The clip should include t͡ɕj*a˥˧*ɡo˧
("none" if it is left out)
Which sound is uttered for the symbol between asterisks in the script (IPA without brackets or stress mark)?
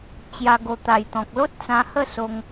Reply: a˧